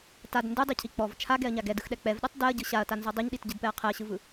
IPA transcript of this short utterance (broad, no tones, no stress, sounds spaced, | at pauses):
t a d n d ɯ dˤ ɯ cʰ i k͡p ɔ v t͡ʃʰ a ɡ ɛ ɐ̯ ɲ a ɡ ɛ d ɯ x ɗ ɛ k͡p ɛ v ɗ ɛ tˤ d ɛ ɐ̯ ɟ ɯ ɕ a ɐ̯ t a n z ɔ dˤ ɛ ɲ ɗ i t ɟ ɯ d p ɛ ɐ̯ qʰ ɛ ɐ̯ ɕ ɯ v ɯ